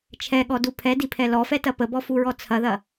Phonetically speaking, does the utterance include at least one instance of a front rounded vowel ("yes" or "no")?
no